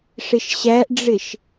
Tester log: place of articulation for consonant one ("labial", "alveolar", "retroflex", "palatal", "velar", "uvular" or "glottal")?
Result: retroflex